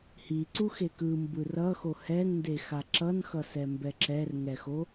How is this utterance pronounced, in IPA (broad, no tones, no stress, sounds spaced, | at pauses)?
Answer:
h i ǀ u x e k ɯ m b ɯ r ʌ x o h ɛ ŋ n d e x a ǁ ʌ n x ʌ s ɛ m b ɛ ǁ ɛ r ŋ ɛ x o